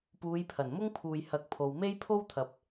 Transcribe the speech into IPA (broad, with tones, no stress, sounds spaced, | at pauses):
p uː˨˧ j pʰ ɐ˨˩ n m ʊ˥ ŋ pʰ uː˨ j h ɐ˨˥ k̚ pʰ o˨ w m e˥ j pʰ o˥ w t̪ʰ ɐ˨˥ p̚